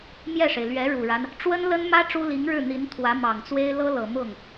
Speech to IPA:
mjɛ˥˩ʂe˩ɪ̯ lɥɛ˧˥ɻu˨˩ɻa˦n | ʈ͡ʂwə˥nlə˥nmä˥ ʈ͡ʂu˥li˧˥ŋɻɻ̩˥˩ n̪i˧˥n t̪ʰwä˧˥ mɑ˨˩ŋt͡swe˥ɪ̯ lɤ˥lɤ˨˩ mʊ˥˩ŋ

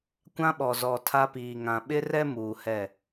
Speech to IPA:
kʷã˦ɓɔ˨ zɔ˨tʰa˦piː˨ ŋã˨ɓɪ˦rɛ˦ muː˨hɛ˦˨

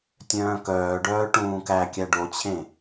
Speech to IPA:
tʲœ̃ːkœːɖœː ʈũːkækʲæ ɖot͡ɕʰẽ

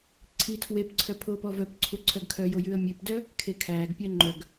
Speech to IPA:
ǀʰitʰwepǀʰœ pʰoːpɔvœpǀʰu ǀʰœɡkʰœjo jʉə̯mʲʉpdœ | kʰekʰæːɡpʲœ ŋ͡ǃœɡ

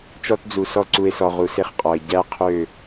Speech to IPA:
t͡ʃɔ˦td͡zu˨sɔ˦ ǀu˨e̯sɔ˨ ʁu˨se˦χqʼɔ˨e̯ ɟæ˦qʰø˦˨

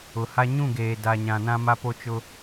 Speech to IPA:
ʊ˨ha˦ ɲũ˦˨ɡeː˨ da˨ ɲã˨nã˦ ma˦po˦t͡ʃʊ˦

